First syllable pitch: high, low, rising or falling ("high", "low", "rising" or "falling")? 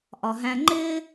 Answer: low